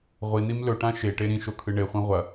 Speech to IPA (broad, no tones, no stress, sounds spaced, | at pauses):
ʁʷ i n̪ i m l ɵ ʈ ã ʃ e ʈ e ɾ ĩ ʃ o kʰ ɨ ɳ e χʷ ã ʁʷ ɐ